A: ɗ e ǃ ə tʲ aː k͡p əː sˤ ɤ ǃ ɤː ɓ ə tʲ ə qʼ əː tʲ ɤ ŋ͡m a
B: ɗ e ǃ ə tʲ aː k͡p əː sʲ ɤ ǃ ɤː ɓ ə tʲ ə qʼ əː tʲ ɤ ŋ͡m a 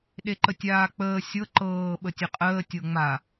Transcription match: B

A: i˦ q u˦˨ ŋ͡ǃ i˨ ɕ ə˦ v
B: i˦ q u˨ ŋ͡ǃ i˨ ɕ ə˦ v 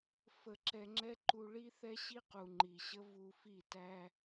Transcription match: B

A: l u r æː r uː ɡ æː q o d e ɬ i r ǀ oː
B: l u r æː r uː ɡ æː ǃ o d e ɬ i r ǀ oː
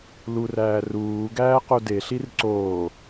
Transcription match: A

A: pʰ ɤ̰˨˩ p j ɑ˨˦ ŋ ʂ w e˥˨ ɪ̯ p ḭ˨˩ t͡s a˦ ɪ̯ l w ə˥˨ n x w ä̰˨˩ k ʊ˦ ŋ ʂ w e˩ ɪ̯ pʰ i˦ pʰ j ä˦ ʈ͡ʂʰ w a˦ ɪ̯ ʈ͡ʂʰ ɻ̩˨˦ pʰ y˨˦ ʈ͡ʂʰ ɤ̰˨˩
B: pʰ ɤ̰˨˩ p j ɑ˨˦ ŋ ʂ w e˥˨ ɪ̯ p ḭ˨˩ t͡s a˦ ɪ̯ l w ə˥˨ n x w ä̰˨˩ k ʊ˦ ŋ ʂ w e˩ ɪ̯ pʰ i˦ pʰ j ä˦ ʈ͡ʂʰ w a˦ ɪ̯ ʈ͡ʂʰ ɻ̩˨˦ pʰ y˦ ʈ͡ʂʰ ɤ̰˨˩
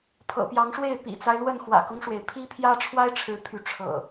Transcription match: A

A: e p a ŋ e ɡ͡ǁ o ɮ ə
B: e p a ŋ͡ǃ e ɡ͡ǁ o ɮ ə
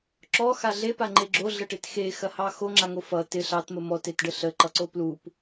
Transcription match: B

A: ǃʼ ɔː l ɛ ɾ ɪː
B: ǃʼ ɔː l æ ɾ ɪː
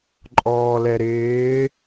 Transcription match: A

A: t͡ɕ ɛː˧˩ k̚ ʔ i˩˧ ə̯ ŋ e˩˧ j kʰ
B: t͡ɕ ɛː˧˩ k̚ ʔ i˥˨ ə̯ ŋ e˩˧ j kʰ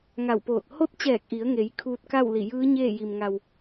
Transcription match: A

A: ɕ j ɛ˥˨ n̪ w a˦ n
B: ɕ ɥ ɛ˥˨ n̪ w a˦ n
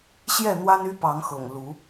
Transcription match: A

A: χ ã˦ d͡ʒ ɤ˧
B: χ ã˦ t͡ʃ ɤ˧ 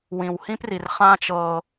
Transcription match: B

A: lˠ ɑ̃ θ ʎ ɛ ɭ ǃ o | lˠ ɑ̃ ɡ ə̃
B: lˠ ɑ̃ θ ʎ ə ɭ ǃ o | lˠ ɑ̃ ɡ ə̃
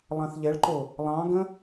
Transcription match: A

